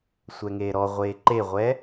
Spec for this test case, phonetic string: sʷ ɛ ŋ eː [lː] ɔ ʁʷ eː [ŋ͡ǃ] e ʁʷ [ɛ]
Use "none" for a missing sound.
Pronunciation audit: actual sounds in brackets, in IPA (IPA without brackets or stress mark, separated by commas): ɾ, ǃ, ɛ